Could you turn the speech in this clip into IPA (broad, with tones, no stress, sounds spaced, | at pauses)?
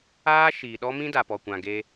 aː˦ ʃ iː˨ ɗ ɔ˦ m ĩ˦ d a˨ p ɔ˨ kʷ ã˨ ɡ e˦